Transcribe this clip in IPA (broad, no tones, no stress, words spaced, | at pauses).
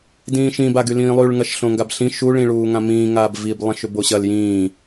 dĩːʃĩbaɡy lĩːlˠyɭŋɐʃ ɬõŋɡabɬĩ ʃuɭĩɭuːŋã mĩːŋaːb vib lˠɐ̃ʃʏboɕɐl jĩː